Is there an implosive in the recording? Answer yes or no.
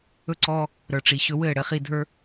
no